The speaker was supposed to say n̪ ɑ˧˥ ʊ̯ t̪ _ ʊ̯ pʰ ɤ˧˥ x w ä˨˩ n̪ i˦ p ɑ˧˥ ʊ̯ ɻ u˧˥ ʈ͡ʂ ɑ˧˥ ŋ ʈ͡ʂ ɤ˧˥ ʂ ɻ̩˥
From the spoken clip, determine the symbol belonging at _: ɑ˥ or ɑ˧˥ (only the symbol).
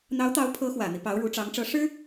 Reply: ɑ˧˥